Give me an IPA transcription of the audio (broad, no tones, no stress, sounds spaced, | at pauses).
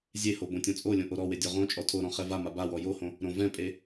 zʲ e h o b õ tʲ ɔ̃ t͡sʼ o lʲ õ ʔ o ɾ ɔ w e dʲ ɔ ʁ õ t͡ʃʼ ɔ tʰ o ɾ ɔ̃ χ ɛ v a m a b a w ɔ j o h õ | ɾ õ v ɛ̃ pʼ e